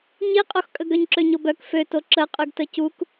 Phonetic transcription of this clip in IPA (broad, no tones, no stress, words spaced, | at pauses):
ɲiqʼoxkʼəɡ œɲǁøɲobœk føto ǁə qʼyɡtəcuk